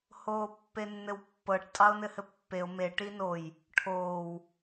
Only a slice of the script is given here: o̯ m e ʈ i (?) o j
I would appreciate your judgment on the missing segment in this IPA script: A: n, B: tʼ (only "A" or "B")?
A